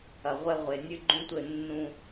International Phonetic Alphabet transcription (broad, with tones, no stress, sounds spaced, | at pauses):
ɐ˨ ʁʷ ɛ˦ ʁʷ e˨ nʲ ɨ˦ ɡ͡ǃ ũ˦ tʷ ɘ˦˨ nː ũ˦